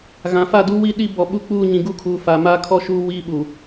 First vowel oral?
no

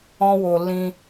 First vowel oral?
no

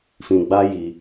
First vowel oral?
no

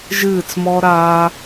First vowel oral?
yes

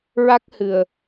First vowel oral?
yes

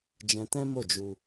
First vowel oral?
no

